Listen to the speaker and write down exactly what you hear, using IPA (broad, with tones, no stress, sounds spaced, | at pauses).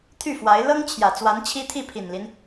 t̪ʰ y˥˩ f w a˧˥ ɪ̯ l ɤ˥ ŋ t͡ɕʰ j ä˨˩ t͡s w a˧˥ n t͡ɕʰ i˥ t̪ʰ i˥˩ pʰ i˨˩ n l i˦ n